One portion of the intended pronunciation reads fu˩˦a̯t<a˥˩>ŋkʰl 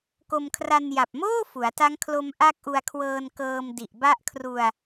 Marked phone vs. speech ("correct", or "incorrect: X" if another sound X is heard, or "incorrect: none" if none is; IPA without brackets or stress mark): incorrect: a˦˥